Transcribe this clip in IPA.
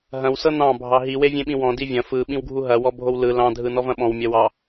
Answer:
ɦɐ̃w sɤnɑ̃ bʱɑɦi wevʲẽɓĩwɔ̃ divʲɐ̃ fɯ ɓĩwɡʱuɦɐ wɔbʱowlɯ lɑ̃ dʱɯnɔvɐ̃ɓɔ̃w mʲɐwɑ

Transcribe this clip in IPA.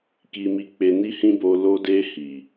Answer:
ki˧mi˧ k͡pe˧ni˦hĩ˦bo˧ lo˧de˧ hi˨

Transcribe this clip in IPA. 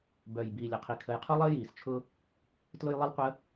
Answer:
bœ˨˩j biː˨˩lʲə˨˩qʰi˨˩ kʰə˨˩jqʰu˥lˠəː˥ jiː˨˩st͡ʃʰʊ˥ | tlʊ˥jlˠi˥lˠqʷə˥

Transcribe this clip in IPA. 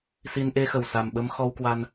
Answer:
si˧n ʔe˧xə˨˩w sa˨˩mɓə˧m xɔ˧wkwa˧n

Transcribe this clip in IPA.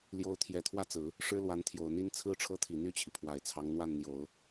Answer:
ljo˧˥ʊ̯t̪ʰjɛ˨˩t̪ʰwä˥˩t͡sɹ̩˨˩˦ | ʂɻ̩˥lwa˧˥nt̪ʰjo˨˩ʊ̯n̪i˥n t͡sʰɹ̩˥ʈ͡ʂʰɤ˥t̪ʰi˨˩ n̪y˥˩t͡ɕʰi˩pʰwa˨˩ɪ̯t͡sʰɑ˧˥ŋ n̪wa˥˩nn̪jo˨˩˦ʊ̯

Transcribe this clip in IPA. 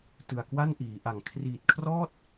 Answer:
tɯ˨˩a̯kwa˥˩n ʔiː˩˦ʔa˨˩ŋ kʰriː˨˩t̚kʰrɔː˥˩t̚

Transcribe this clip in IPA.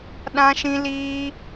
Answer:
ɗã˦ʃĩ˦ liː˦

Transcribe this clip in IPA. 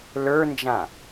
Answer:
lə˞nd͡ʒã

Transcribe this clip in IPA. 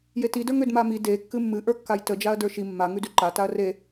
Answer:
jetidə˞ŋ ʏdmami de kːɨmːɨ ʔə˞kːajtə d͡ʒaɐ̯də˞ʃi mːa ŋʉdʉǃataɐ̯ re

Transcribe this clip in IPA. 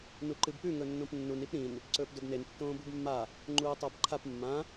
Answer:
nuǃɨbpʉ ŋɵnːõpnːun ipɾĩn | ǀɵːpdɵbnen tːõːbubmːa | ŋ͡ǃuːtˤabǃʰap mːã

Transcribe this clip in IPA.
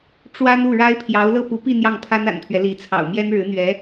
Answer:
ʈ͡ʂwa˥n u˥˩ɻa˥ɪ̯pʰjɑ˧˥ʊ̯ lɤ˥˩pu˧˥pi˥˧ n̪jɑ˥˩ŋpʰa˥na̰˨˩npʰɥɛ˦ li˧˥ t͡sʰɑ̰˨˩ʊ̯mjɛ˥n ɻɻ̩˧˥n̪ɥɛ˧˥

